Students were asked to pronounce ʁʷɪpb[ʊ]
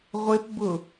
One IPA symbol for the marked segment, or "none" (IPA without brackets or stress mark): ʊ